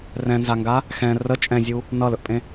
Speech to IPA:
rɛ̃nzaŋɡa | xɛ̃ rə t͡ʃʼɛ̃zʲu | nʌlɵʔpʼẽ

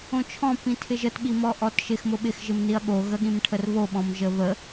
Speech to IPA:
õt͡ʃʰɔ̃ pĩtʰɪʒət ɓimɔʔɔtʃɪx mʊɓɪx ʒɪmniɐ̯ɠo ɣəɠĩmʈʰərβo ɓɔ̃mʒəβə

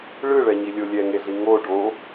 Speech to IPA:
ɭɯɭɛɲilʲo lʲɛŋeɮi ŋo ɖo

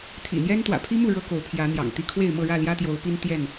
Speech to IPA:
t̪ʰḭ˨˩n̪jɛ˦n t̪wä̰˨˩pʰi˦mu˥˨ ɻɤ˦ko˨˦ʊ̯pʰjä˨˦ n̪jɑ̰˨˩ŋt̪i˥˨ kʰwe˥˨ɪ̯mɤ˥˨ɻä˥˨ ljä˦t̪jo˨˦ʊ̯pi˦n t̪jɛ˥˨n

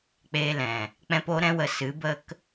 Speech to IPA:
k͡peː˧lɛ̃˨ | k͡pɛ̃˦po˦ ɾɛ̃˦wə˧ sɨ˨˦bə˦k

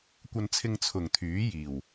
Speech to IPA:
kʷɐ˧nt͡sʰɪ˧ŋ t͡sʰʊ˨˩ŋt̪ʰyː˨˥ jiː˨˩w

